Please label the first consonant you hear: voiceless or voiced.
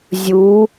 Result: voiced